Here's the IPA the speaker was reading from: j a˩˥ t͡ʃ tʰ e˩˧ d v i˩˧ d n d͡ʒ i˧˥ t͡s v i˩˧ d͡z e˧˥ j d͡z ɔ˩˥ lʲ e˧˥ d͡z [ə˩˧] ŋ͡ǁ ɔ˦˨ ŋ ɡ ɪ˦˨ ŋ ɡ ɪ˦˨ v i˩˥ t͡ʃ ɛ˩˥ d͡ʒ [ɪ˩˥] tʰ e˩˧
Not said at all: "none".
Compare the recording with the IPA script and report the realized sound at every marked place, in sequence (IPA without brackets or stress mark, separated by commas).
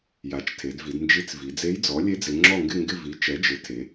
ɪ˩˧, ɪ˩˥